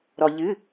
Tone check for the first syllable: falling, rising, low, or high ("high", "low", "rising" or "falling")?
low